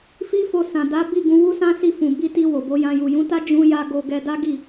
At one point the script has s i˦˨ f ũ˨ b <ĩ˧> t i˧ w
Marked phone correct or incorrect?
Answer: incorrect